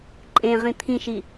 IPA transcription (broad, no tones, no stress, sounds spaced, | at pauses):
ǃʼ ẽ ʁ ĩ t̪ʰ ĩ ʃ i